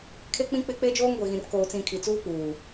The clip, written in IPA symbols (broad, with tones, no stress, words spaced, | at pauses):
kʰe˦k͡pĩ˦k͡pɪ˦ k͡pe˦d͡ʒoː˦ŋɡʷe˨ɣĩ˨r koː˨t͡sĩ˨ kʰi˨t͡suː˦k͡puː˨